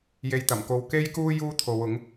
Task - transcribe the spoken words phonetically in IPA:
j e˨ j t̪ ɐ˨˩ m k o˨ w k e˥ j k uː˥ j uː˥ t̪ʰ o˨˧ w ʊ˨˥ ŋ

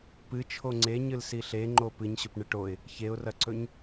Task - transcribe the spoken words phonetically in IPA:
p ɨ t͡ʃʰ o ŋ͡ǀ e ɲ ɨ l s i ɬ e ŋ͡ǃ o p ɨ ɲ ɕ ɵ p ɳ ɨ ʈ o ɪ̯ | ç e ʊ̯ r ɐ ǀ ɵ ɲ

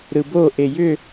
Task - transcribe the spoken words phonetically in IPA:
ɾ ɯ b o ʔ e j ʏ

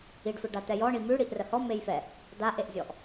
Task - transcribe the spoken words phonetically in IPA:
i ɖ f ɯ ɖ a t̪ ɛ j ɔ ɳ i m ʉ ɽ i ʔ r ə h ɔ m e j f ɛ | d̪ a ʔ e ʔ zʲ ɔ ʔ

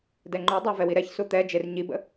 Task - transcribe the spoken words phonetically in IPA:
d ɛ ŋ͡ǃ u dˤ əː v ɛ w i ɾ ɛ ç s u t̪ ɛ d͡ʒ e r ɲ i b ə̰

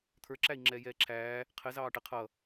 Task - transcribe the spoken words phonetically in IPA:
t̪ʰ ə˞ ǁ æ i̯ ŋ͡ǁ ɛː j ɛː ǁʰ æː | qʰ ɪ z ɑː ʈ ɪ qʰ ʌ

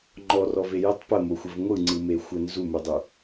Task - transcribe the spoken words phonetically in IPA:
ŋ͡ǃ ɔ r ɔ v e j ə tˤ p ə m o xʷ ə v ŋʷ ɯ ŋ͡ǀ ɯ m e xʷ ə n z u m u dˤ u

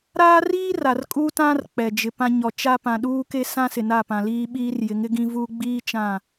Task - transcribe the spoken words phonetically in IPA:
ɾ aː˦ r iː˦ r a˨ r kʼ u˦ t ã˦ r k͡p ɛ˨ d͡ʒ ɪ˨ p ã˦ ɲ ɔ˨ t͡ʃ a˦ p ã˨ ɗ uː˦ k e˦ s ã˦ s ɪ˨ n a˦˨ p ã˨ l iː˦ ɓ iː˦ r j ɪ˨˦ ŋ ɪ˦ ɡ ĩ˦ v uː˦ ɡ͡b iː˦ t͡ʃ ã˦˨

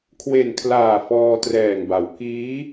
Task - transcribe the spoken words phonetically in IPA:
kʰ w e˨˩ n kʰ l aː˨˩ f ɔː˧ t r ɛː˨˩ ŋ b a˩˦ w k iː˦˥

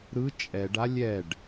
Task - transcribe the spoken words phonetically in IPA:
ɾ ɯ t͡ʃʼ ɛ ɖ a lʲ ɛ ɖ

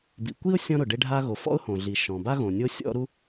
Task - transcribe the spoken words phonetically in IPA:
b ḭ˩ kʷ i˥ ʊ̯ sʲ ɔ̃˥ ɾ ʊ˩ ɖ e˥ ɖʱ a˥ ɣ o˩ f ɔ̰˥ ʊ̯ h õ˩ ɮ i˩ ʃ ɔ̃˩ b a˥ ɣ õ˩ nʲ o˥ sʲ ɔ̰˥ ɾ u˥

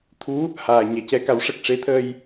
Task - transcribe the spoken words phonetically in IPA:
t̪ʰ u˧˥ | h aː˨˩ ɲ ɛ˨˩ c ɛ˧ k a˨˩˦ w ʂ ə˨˩ k̚ ʂ e˧˥ t̪ʰ əː˧ j

